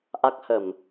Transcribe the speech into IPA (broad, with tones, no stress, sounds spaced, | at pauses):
ʔ a˦˥ k̚ h ə˧˩˨ m